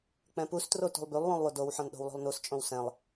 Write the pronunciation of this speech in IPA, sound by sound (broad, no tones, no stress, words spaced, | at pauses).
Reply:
k͡pɛ̃pustro tṳlˠbylˠwũlˠ wodowħɔ̃n ɗo̤wlˠo̤lˠnust͡ʃʼõw sɛ̃lˠ